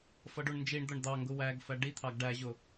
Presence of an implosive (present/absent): absent